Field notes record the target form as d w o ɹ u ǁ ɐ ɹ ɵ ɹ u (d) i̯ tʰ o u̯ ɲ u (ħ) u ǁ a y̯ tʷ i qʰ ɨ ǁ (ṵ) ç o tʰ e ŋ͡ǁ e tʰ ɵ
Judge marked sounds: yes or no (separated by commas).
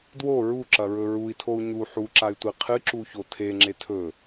no, yes, no